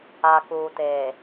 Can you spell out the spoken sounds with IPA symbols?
a˨kuː˨teː˨

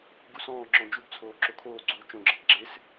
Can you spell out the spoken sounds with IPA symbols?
ɡusɔ̃ːŋ͡ǁɔ̃ d͡ʒubt͡sʰoː ǁokʰoːɡ͡ǀuː t͡ʃõɡ͡ǁəb ɡ͡ǁɪs

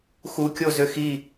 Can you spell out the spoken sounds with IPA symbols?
xukʲozø xi

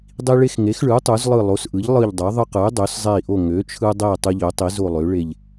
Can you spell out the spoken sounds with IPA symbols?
dˤi˦ɭe˦xŋe˩˥xɭɯ˩˥u̯ tˤu˩˥zlˠɯ˦˨ lˠo˩˥sʔɯ˩˥ʎ lˠɯ˦˨ʎdˤø˩˥ ðˤɯ˦qɯ˩˥y̯ dˤø˩˥szˤe˦˨i̯ʔo˦˨ ŋø˩˥t͡ʃʰɯ˦dˤe˦˨ tˤɯ˦ʎø˩˥tˤi˩˥zo˦˨ lˠø˩˥ ɭe˦˨ʎ

